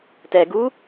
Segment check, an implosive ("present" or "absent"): absent